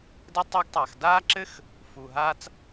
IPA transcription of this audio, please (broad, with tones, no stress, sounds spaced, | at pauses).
d ɛ˥ tˤ o˥ ɡ tˤ aː˨ x d aː˥ ǁ ɘ˥ x | f u˨ ɦ aː˦ t͡s